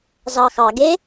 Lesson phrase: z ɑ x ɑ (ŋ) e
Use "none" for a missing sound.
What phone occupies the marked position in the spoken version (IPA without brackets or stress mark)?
ɡ